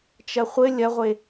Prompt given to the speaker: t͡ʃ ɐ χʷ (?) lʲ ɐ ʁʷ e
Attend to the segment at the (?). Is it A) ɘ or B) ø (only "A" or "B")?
A